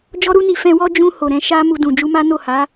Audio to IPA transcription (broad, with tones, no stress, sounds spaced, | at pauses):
d͡ʒ ɔ˦ ɾ u˦ n i˧ f ɛ̃˧ w ɔ˦ d͡ʒ ũ˧ h o˨ ɾ ɛ̃˧ ʃ a˦ m u˧ d ũ˨ d͡ʒ u˧ m a˦ n o˦˨ h a˨˦